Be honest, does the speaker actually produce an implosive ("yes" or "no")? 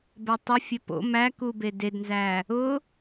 no